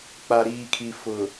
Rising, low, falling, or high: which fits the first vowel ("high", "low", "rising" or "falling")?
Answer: low